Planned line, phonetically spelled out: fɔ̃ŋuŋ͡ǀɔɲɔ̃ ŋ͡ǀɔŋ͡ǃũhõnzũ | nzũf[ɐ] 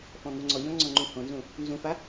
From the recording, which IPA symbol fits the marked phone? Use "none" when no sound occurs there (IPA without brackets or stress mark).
a